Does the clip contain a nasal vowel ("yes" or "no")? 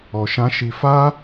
yes